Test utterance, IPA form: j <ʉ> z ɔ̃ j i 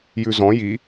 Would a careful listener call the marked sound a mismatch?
no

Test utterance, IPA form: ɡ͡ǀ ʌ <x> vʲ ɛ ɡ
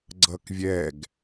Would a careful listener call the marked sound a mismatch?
yes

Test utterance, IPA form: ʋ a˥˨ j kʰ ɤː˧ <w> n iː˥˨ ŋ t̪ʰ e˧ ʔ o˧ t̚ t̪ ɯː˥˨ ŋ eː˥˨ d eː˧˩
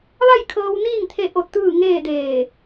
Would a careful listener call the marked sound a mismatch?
no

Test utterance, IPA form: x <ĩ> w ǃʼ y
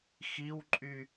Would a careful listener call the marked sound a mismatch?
yes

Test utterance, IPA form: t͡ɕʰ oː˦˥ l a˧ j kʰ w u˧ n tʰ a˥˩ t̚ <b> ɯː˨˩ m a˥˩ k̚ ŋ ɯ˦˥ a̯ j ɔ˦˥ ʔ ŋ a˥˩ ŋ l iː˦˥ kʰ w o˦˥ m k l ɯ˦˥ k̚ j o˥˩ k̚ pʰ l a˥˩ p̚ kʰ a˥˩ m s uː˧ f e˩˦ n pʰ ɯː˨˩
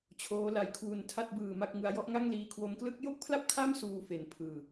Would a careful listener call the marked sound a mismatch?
no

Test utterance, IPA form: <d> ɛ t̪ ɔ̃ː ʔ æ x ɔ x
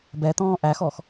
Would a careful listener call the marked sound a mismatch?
yes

